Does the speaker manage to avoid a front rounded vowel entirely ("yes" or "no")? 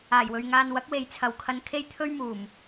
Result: yes